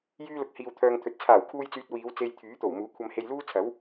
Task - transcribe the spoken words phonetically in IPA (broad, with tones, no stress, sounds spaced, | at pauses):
j yː˧ l ʊ˨ k̚ h iː˨ w t̪ʰ œː˨ ŋ t̪ʰ ɵ˨ t̚ t͡sʰ aː˨˩ w kʰ uː˧ j t͡s yː˨ t̚ w iː˨˧ w t͡s e˧ j t̪ʰ yː˨˥ t̪ o˨˩ w m uː˨˥ kʷʰ ɐ˧ m h e˧ j l uː˥ t͡sʰ ɐ˨˥ w